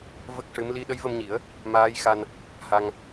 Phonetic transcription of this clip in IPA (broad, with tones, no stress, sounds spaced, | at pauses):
v ə˦˥ k̚ ʂ ɨ˧˥ m l i˧ ɗ ə˧˥ j v ə˧ m ɲ i˨˩˦ ə̯ | m aː˧˥ j x a˧ n | h a˧ ŋ